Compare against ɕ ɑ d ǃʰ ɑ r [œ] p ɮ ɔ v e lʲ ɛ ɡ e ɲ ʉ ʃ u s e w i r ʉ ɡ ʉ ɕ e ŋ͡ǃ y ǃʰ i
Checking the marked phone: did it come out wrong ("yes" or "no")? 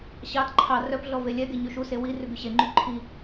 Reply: no